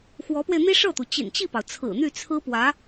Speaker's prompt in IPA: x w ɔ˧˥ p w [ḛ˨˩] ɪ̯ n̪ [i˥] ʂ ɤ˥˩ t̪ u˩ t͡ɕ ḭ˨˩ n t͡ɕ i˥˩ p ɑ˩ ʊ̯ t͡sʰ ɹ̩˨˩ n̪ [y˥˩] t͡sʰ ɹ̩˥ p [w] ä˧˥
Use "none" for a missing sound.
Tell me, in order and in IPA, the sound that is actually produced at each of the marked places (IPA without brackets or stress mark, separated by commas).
e˧, i˥, y˥˩, w